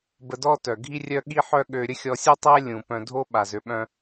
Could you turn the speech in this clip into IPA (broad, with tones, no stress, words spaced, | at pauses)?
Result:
bə˧dɔ˦tœ˨ɡʱi˦ rʲœ˧ɠi˧ħœ˧ ɠø˧ ɾʲə˦xʲɔ˧sʲu˦tˤɛ˦ lʲũ˨pœ̃˧ dʱo˦ɓa˨zø˨ ɓœ̃˧